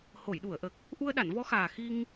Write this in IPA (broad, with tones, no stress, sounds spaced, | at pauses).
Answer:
h o˨˩˨ j ɗ u˨˩˨ ə̯ ʔ ə˨˩ k̚ | ʔ u˧ ə̯ ɗ a˨˩˨ n v ɔ˧˥ x aː˨˩ x i˧ ŋ